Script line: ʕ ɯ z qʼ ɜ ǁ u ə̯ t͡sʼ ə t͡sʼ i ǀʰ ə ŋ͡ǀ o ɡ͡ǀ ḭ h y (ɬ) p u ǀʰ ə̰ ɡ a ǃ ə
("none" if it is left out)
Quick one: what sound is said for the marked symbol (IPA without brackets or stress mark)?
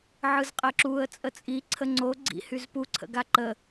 z